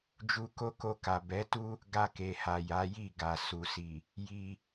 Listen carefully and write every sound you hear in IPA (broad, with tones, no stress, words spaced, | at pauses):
d͡ʒu˧ko˦ko˧ ka˨ bɛ˨˦tu˦ | ɡa˧ke˨ha˨ ja˨˦ji˦˨ɡa˨ su˨si˨ | ji˧